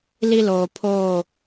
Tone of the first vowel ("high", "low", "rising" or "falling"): high